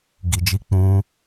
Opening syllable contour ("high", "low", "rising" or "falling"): low